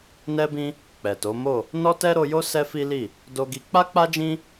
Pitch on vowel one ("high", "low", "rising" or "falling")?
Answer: high